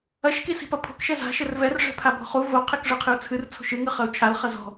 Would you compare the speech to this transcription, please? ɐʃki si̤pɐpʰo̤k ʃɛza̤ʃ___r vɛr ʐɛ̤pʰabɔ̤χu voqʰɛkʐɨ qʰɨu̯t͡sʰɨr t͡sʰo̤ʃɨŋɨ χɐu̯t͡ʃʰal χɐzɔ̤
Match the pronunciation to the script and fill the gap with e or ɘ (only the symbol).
ɘ